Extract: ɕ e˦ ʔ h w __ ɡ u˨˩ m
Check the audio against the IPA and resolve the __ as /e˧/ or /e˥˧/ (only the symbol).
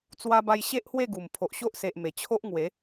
e˥˧